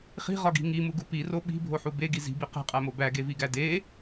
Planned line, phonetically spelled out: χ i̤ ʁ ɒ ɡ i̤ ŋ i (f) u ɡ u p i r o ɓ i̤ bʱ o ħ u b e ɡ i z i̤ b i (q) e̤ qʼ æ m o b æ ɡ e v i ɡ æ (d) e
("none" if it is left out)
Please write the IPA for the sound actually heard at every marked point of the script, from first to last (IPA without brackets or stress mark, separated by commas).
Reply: m, q, d